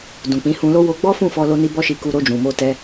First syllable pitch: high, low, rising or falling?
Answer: low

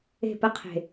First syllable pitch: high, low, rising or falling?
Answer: falling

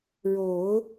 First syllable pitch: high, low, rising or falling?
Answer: low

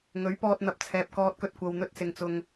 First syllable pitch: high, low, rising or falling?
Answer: rising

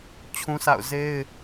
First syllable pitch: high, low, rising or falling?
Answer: high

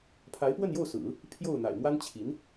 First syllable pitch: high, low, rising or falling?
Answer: rising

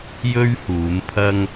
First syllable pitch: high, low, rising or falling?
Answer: high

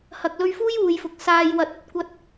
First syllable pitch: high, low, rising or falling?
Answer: low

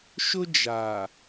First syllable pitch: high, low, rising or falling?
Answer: high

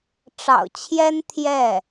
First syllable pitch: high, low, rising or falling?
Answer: low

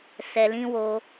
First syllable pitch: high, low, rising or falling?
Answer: low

